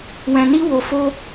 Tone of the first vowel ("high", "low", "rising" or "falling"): low